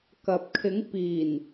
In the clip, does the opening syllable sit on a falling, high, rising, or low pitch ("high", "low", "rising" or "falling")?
low